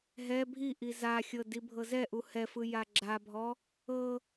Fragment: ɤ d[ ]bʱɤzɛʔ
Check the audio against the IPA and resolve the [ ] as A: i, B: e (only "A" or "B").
A